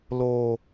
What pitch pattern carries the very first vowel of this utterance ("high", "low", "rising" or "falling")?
low